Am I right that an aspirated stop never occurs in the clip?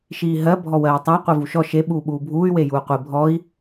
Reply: yes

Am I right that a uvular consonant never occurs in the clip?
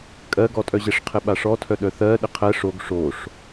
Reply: no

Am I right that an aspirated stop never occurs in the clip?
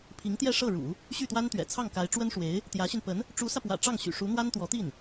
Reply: no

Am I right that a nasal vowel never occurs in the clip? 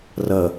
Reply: yes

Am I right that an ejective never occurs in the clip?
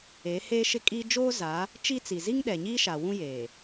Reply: no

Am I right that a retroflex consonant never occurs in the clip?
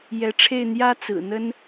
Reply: no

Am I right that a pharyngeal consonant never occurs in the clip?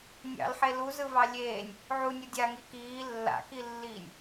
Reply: no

